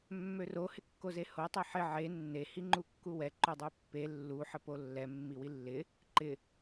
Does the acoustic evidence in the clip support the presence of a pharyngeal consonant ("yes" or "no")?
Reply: yes